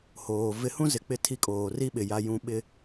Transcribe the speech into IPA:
h oː˨ v ɪ˨˦ h ũ˦ z ɪ˨ k͡p ɪ˦ tʰ i˦ kʼ oː˨ r i˦ ɓ ɪ˨ j a˨ j ũ˨ ɓ ɪ˨

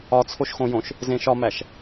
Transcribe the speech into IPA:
ɒ t͡sʰ o ʃ x õ j õ ʃ | z ẽ ʃ ɒ m æ ʃ

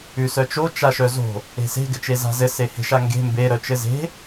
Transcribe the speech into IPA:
ʉ s œ t͡ʃ o t͡ʃ a ʃ œ z o̤ | e̤ s e̤ ɡ ɘ t͡ʃ e z a̤ z ɘ s e h e̤ ʃ a ŋ ɡ e̤ m b e ɾ œ t͡ʃ ɘ z e̤

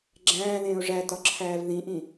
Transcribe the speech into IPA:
ɡ͡ǁ æ̃ː ð ẽː ʊ̯ ʐ æ t ɒ ǁʰ æː v ð ĩ ʔ ĩ

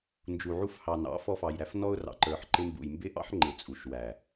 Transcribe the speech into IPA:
n d͡ʒ u˨ ʕ u˧ f h ɑ˨ n ɑ̰˨˦ f ɔ˧ f ɑ˨ j ɾ æ˧ f n ɔ˦ ʊ̯ r ɑ̰˨ ǃ ə˞˨ ħ ǃ ɪ˧ m b ṵ˨ j m b ɪ˦ ʔ ɑ̰˦ ħ ŋ͡ǃ ɪ˨ t͡sʼ u˨ ʃ w æ˨

